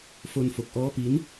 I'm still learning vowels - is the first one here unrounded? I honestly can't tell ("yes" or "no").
no